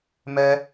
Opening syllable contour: high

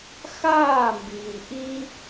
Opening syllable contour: falling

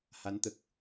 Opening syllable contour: rising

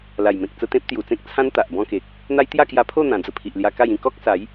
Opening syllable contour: low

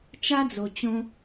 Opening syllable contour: high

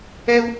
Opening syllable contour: high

